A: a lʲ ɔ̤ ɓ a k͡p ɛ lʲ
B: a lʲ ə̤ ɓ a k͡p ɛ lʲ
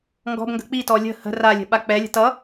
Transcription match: B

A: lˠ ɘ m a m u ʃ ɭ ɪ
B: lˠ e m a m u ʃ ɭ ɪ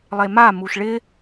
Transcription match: B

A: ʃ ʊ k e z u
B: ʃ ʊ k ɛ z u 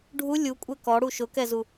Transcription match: B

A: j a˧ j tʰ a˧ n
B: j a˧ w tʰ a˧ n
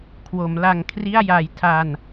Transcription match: A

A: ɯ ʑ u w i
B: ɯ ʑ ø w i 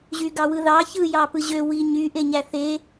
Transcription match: B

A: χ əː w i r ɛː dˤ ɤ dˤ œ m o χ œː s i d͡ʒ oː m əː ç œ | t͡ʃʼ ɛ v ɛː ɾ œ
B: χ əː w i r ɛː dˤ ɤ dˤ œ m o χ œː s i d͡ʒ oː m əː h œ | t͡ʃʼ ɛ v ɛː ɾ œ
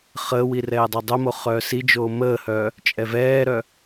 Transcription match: B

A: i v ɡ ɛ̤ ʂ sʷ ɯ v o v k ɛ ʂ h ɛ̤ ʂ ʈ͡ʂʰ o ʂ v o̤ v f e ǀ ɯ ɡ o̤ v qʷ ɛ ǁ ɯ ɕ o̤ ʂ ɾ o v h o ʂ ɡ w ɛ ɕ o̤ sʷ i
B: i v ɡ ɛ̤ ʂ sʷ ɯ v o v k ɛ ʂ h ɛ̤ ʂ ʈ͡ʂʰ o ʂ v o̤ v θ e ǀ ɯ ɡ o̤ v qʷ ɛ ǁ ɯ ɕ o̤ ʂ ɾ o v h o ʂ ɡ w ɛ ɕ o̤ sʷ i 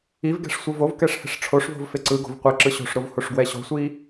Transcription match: A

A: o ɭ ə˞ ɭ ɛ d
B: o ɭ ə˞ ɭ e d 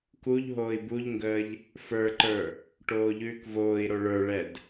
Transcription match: A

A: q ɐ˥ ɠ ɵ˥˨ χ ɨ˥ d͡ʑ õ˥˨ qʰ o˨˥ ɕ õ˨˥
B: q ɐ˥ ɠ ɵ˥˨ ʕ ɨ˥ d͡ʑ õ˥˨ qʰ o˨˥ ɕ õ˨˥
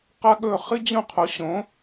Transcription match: A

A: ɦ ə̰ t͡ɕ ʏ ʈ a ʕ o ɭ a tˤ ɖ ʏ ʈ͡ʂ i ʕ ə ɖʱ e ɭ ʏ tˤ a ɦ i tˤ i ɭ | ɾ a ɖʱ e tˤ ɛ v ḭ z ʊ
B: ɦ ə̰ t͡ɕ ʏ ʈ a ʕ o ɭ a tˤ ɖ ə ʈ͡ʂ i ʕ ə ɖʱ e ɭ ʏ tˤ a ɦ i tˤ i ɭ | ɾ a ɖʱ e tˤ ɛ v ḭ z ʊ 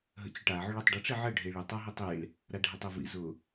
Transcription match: B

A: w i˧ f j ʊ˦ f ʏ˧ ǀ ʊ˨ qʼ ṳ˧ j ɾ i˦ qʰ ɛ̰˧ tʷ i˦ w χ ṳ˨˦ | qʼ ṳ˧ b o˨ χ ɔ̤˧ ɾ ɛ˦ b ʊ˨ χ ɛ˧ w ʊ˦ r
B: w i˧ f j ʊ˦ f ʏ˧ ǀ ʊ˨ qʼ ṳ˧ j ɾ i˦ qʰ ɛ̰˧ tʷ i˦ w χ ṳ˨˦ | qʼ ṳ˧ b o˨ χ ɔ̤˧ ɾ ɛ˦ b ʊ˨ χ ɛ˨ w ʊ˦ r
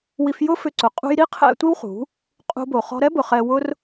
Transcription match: A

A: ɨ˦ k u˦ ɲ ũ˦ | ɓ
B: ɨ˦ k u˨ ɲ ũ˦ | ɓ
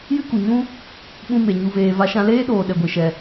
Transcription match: B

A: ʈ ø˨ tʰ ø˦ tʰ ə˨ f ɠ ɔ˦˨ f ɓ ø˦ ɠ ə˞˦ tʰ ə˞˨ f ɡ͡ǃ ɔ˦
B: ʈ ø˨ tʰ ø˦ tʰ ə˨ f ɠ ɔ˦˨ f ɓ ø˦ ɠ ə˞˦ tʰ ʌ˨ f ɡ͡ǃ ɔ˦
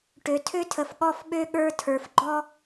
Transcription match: A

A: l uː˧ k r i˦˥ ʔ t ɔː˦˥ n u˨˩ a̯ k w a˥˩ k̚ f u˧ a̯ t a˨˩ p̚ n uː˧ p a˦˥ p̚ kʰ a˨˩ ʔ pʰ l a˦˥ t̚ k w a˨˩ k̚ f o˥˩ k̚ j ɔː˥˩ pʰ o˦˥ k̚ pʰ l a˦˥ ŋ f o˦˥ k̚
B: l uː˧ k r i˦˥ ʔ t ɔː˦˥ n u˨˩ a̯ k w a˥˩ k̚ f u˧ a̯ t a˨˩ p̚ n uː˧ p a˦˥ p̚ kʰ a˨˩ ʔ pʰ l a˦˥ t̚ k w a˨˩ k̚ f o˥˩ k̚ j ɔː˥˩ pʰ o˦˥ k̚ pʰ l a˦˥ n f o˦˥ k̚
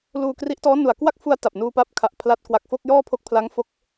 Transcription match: A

